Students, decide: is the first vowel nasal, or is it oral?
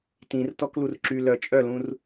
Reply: nasal